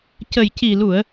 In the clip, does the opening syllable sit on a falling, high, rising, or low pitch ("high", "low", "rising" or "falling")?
low